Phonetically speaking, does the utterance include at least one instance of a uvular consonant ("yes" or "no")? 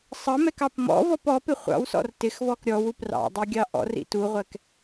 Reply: yes